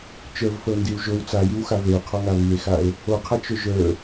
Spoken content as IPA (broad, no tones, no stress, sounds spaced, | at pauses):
t͡ʃ ə˞ v f ə o̯ n d i w ʒ o w t͡s a j i w x a v e o̯ qʰ ɔ ŋ a β i e̯ x a e̯ | o qʰ a t͡ʃ ɵ ʒ ə˞